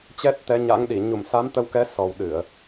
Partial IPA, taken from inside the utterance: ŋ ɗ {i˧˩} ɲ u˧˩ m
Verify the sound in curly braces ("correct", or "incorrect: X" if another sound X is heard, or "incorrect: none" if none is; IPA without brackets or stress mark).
correct